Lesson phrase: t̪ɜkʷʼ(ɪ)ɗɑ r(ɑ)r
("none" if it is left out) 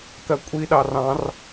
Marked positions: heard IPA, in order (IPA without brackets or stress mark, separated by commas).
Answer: i, ɑ̃